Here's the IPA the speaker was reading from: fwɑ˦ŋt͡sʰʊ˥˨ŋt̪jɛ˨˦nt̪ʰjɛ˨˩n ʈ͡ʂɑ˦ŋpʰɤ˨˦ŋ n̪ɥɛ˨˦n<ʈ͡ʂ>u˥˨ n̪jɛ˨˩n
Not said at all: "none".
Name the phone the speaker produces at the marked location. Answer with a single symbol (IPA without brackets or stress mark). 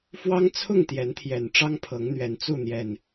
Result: t͡s